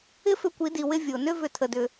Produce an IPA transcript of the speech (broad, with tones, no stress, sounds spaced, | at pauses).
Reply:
ɪ˦ f ʏ˧ kʷ i˨˦ d i˨ w ɪ˧ vʲ o˨ n ʏ˦ v ʏ˧ tʰ ə˧ d ʏ˧